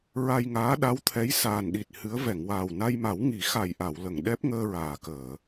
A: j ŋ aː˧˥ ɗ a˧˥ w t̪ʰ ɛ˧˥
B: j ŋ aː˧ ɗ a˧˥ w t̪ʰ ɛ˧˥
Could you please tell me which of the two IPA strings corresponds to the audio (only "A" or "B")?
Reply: A